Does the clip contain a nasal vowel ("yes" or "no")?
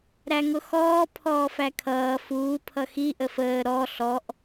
no